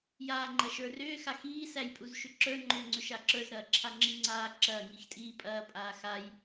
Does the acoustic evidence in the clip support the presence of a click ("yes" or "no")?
yes